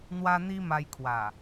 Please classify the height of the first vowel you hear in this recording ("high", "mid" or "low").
low